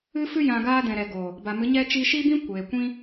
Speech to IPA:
ɨ˦ f ɨ˦ j ã˧ ɡ aː˦ d ɛ̃˨ ɾ ɛ˨ ɡ o˨ | b a˨ m ɨ˨˦ ɲ ɛ˦ t͡ʃ i˧ ʃ i˦ b ĩ˦ kʷ eː˨ kʷ ĩ˦

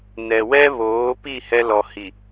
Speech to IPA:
n ɛ˨ w ɛ˦ β oː˨˦ p i˦˨ h ɛ˦ l ɔ˨ h i˨

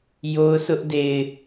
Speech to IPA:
j o˦ ʊ̯ sʰ ʊ˦ ʔ d e˨ ɪ̯

